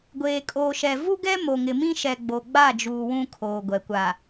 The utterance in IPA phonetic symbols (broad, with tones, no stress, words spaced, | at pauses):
ɡʷeː˨kʼoː˨ʃɛ˨ vu˦ɡɛ˦ mo˨ŋɪ˨mĩ˦ ʃɛ˨ɡ͡bo˨ɡ͡ba˦˨d͡ʒuː˨ wũ˦kʰoː˨ɡʷɛ˨ kʷa˨